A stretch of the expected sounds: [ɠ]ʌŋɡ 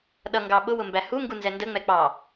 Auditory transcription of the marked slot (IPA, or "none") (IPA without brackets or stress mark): ɗ